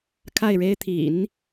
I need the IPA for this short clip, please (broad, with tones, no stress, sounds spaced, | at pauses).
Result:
kʰ a˥˩ ɪ̯ ɻ e˥ ɪ̯ t̪ʰ ḭ˨˩˦ n